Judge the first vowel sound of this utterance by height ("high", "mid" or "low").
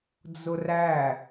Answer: high